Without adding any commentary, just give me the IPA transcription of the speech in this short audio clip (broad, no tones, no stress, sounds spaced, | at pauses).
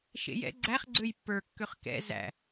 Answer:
ʃ ḛ j ɛ̰ ɡ͡ǀ æ χ ɡ͡ǀ ø j pː ə˞ kː ø χ k ɛ̰ z æ̰